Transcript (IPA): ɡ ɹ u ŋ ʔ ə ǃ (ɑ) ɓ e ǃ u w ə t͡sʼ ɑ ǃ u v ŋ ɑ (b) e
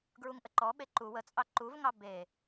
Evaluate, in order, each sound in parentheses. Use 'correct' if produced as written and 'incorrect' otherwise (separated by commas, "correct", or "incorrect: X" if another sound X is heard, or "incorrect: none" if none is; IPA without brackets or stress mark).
incorrect: ɔ, correct